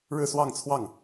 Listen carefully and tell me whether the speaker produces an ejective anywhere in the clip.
no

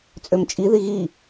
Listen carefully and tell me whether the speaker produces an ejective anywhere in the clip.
yes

